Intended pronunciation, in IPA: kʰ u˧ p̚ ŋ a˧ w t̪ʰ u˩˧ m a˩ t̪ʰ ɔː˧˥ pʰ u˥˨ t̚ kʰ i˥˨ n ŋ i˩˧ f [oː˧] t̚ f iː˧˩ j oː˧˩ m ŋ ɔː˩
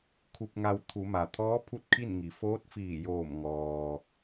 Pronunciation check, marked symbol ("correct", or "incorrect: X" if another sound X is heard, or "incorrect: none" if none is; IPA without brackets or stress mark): incorrect: oː˧˥